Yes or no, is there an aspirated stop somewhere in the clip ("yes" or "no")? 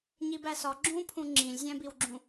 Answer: yes